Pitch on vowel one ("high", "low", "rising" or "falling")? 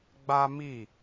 high